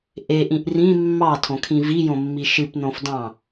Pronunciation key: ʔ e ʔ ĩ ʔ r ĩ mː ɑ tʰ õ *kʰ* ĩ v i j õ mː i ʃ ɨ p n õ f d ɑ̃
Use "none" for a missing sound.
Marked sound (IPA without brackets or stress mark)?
kʰ